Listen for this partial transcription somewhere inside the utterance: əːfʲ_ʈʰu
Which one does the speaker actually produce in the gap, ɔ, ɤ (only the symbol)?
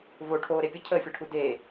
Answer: ɤ